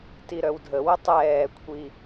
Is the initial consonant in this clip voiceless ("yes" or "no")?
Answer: yes